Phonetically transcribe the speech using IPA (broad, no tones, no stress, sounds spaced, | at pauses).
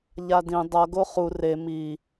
ʎ a d ĩ dˤ ʌ ɡ o χ u r e m i